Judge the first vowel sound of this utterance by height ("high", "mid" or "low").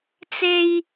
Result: mid